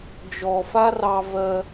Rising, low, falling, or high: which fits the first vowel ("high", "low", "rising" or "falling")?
low